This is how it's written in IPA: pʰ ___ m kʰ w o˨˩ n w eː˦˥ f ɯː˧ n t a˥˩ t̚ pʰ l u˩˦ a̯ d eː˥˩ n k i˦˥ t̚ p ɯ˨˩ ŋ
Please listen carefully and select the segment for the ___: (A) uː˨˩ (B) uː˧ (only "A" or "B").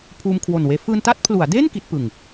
B